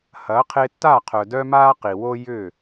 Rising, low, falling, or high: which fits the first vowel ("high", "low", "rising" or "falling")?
rising